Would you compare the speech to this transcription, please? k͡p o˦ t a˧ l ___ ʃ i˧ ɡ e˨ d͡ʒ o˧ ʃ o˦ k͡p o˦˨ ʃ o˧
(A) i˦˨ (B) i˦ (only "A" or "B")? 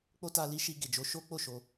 B